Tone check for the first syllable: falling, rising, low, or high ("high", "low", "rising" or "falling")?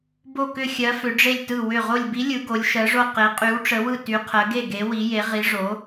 falling